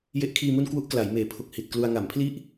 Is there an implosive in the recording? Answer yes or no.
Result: no